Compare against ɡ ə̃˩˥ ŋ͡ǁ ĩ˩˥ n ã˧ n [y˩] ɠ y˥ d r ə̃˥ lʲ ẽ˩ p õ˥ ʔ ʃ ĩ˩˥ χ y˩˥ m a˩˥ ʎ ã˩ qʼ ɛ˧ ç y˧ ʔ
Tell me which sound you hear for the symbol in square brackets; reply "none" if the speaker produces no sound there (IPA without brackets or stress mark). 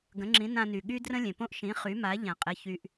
y˩